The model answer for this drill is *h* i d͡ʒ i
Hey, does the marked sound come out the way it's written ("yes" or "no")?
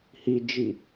yes